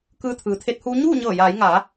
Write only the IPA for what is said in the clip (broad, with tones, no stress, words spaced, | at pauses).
kɯː˧t̪ʰɯː˩t̪ʰe˧˥t̚huː˧˥ ɲuː˥˨ɲɤː˧˩jaː˩˧jŋaː˩˧